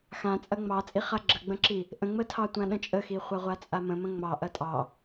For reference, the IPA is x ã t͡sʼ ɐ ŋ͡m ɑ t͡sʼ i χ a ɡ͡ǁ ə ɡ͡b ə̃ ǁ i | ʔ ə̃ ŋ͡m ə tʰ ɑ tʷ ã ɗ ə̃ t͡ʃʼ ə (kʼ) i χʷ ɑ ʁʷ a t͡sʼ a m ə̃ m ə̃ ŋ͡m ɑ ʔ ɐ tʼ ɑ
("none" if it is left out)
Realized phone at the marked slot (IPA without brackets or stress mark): x